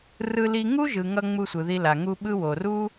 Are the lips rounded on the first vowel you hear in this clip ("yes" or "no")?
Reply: no